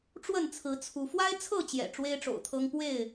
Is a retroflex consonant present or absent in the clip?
present